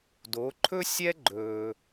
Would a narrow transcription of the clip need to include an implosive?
no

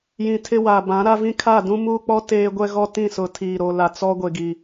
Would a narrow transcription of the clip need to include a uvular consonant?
no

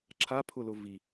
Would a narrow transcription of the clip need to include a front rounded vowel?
no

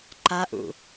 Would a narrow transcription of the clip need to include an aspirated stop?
no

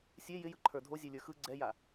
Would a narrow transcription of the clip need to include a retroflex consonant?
no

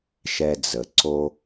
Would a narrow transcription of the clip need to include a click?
yes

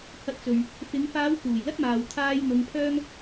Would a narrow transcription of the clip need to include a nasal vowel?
no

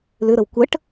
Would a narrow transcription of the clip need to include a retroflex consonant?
yes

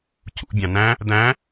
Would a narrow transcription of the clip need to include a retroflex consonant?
no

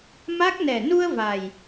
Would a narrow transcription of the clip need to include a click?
no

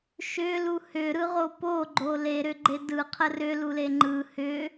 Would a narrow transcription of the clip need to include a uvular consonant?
yes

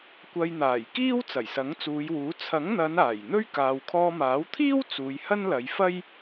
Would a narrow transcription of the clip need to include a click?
no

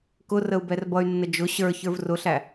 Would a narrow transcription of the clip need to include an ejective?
no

